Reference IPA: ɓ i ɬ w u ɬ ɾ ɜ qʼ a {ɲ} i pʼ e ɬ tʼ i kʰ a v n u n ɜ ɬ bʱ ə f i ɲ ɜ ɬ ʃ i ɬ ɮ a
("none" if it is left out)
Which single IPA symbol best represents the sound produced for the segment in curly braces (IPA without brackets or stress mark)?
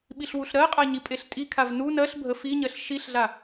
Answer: ɲ